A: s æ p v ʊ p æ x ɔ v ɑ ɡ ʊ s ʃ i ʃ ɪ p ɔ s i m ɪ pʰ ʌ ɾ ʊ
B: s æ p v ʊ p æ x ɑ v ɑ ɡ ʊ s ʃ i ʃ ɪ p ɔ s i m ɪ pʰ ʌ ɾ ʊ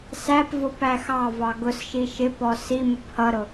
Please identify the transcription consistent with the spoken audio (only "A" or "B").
B